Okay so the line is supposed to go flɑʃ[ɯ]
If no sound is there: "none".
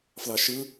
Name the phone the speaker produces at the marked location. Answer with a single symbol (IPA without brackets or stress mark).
ɯ